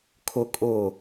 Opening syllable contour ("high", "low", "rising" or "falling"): high